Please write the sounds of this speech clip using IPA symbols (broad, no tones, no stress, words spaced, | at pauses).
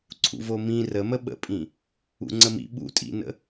ǀʰṵvomĩ rəmə ɓə̰pʼĩ | ṵŋ͡ǀəmḭ ɓṵtʼḭnə̰